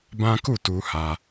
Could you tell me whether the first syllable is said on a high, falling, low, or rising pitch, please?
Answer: high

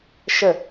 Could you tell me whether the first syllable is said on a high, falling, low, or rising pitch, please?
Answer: falling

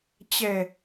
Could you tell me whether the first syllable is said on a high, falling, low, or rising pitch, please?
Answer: low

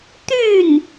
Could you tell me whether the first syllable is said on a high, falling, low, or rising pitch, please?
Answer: falling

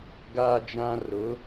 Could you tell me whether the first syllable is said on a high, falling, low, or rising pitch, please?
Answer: high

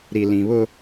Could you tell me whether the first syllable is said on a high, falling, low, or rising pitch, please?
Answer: low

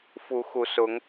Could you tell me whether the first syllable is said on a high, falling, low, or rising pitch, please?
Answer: rising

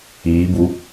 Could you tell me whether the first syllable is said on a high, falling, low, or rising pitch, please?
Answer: rising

